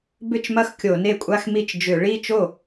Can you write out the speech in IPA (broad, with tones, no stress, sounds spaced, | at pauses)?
b ʏ˥˩ t͡ʃ m ɐ˥˩ x kʲ o˧˩˧ n e˥˩ kʷʼ a˥˧ x m i˥˩ t͡ʃ d͡ʒ ʏ˧˩˧ ɭ i˥˧ t͡ʃ o˥˩